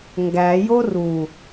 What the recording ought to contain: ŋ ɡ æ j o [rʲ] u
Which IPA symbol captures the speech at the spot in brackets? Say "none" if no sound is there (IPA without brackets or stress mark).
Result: r